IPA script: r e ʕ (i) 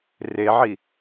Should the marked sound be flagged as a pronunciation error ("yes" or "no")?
no